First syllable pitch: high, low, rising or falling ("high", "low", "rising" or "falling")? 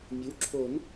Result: rising